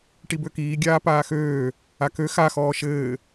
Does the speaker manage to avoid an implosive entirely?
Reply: yes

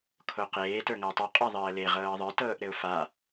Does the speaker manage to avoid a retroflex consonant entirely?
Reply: yes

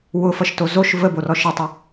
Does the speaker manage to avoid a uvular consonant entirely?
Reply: yes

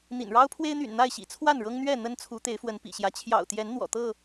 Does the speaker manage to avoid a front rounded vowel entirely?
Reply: no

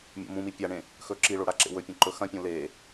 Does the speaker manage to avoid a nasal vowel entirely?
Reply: no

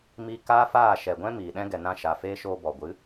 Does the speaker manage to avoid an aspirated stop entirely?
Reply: yes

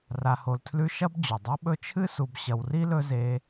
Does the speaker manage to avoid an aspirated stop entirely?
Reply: no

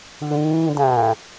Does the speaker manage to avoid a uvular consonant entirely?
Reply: yes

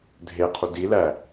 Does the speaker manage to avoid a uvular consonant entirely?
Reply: no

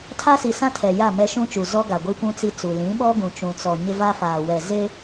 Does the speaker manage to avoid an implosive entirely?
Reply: no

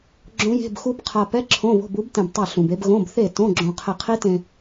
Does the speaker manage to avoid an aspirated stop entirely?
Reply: no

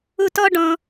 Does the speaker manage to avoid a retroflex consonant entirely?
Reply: no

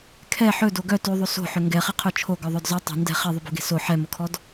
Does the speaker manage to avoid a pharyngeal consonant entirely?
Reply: no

